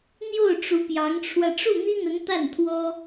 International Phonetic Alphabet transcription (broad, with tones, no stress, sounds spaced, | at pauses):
n̪ j o˥˩ ʊ̯ ʈ͡ʂ u˧˥ p j ɑ˧˥ ŋ ʈ͡ʂʰ w ä˧ ʈ͡ʂ u˥˩ n̪ i˥ n̪ ə˧˥ n t̪ a˥˩ n t̪ʰ w ɔ˥